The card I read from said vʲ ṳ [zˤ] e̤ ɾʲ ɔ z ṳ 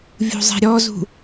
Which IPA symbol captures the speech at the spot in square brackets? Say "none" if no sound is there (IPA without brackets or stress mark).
zˤ